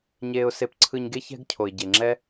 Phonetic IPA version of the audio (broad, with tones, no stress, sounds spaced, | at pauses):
ɲ eː˧ ʊ̯ s e˧ p ǀʰ ɯ˧ ɲ ɡ e˥ ç ɛ̤˥ ɡ cʰ o˩ ɪ̯ ɟ e˩ ŋ͡ǁ ɛ˥